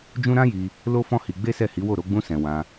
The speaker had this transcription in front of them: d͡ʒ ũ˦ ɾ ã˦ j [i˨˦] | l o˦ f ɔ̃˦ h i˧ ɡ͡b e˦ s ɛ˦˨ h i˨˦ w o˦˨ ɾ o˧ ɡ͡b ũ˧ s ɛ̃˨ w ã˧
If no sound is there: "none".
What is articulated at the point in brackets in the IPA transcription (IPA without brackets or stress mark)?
i˧